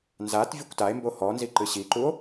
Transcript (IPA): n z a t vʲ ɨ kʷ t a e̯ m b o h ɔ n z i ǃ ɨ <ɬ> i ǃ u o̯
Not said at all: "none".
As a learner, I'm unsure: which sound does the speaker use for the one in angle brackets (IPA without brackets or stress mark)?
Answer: ɕ